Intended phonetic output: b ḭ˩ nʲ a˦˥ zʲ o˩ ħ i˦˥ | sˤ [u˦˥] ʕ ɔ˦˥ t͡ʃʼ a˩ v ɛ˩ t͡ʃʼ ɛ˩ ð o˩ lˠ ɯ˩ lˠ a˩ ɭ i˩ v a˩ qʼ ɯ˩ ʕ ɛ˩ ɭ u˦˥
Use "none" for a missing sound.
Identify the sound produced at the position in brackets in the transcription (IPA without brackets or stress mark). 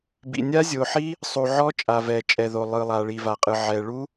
u˩